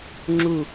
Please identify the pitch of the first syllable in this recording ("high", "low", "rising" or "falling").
falling